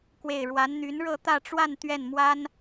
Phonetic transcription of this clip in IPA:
k w e˥˩ ɪ̯ ɻ w a˧˥ n n̪ y˧˥ n ɻ ɤ˥˧ t̪ ä˥˧ ʈ͡ʂ w a˥˧ n t̪ ɥ ɛ˥˩ n m w a˥ n

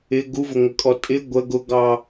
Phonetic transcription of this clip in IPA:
ɪ ɡ u v ʊ ŋʷ ə kʼ ɔ tʼ ɪ ɡʷ ə ɡ ʊ ɡ ɑ

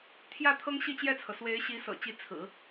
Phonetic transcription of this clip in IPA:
t̪ʰ j ä˥˩ t̪ʰ ɤ˥ ŋ ɕ i˥˧ t͡ɕ j ɛ˥˩ t͡sʰ ɤ˩ s w e˧˥ ɪ̯ ɕ i˧˥ s ɤ̰˨˩ t͡ɕ i˧˥ t͡sʰ ɹ̩˨˩˦

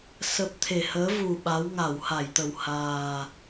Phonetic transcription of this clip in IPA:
s ə˦˥ p̚ t̪ʰ e˨˩ h əː˨˦ v u˨˩ ɓ a˨˦ w ŋ a˧˩ w h a˧˩ j t̪ ə˨˩ w h aː˨˩

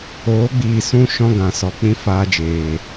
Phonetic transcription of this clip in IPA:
oː˨˦ ɡ͡b iː˨ s ũ˧ ʃ ɔ̃˧ ɡ ã˨ s ɔ˨ k͡p ĩ˦ f aː˧ d͡ʒ eː˨

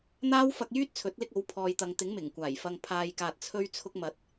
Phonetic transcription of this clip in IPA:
n̪ aː˥ w f ɐ˧ k̚ j yː˥ t̚ t͡sʰ ɵ˨˥ t̚ l ɪ˧ k̚ o˨˥ w pʰ ɔː˨ j t̪ ɐ˨ ŋ t̪ ɪ˨˥ ŋ m ɪ˨˩ ŋ kʷ aː˨˩ j f ɐ˨ ŋ pʰ aː˨ j k aː˨ t̚ t͡sʰ ɵ˧ ɥ t͡sʰ ʊ˧ k̚ m ɐ˨˥ t̚

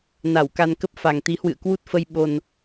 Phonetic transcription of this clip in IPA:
n a˧˩ w k a˧ n k ə˦˥ p̚ f a˨˩ ŋ t̪ i˨˦ h w ɨ̰˧˨ ə̯ k w u˦˥ t̚ f ə˧ j ɓ o˨˩ n

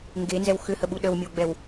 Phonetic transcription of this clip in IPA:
ŋ ɡ e n z ɛ w x ʏ h ə ɓ u ɗ ə w mʲ ə w ɡ͡b ɛ w

